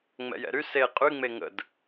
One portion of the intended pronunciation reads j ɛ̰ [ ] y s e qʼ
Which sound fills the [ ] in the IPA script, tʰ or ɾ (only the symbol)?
ɾ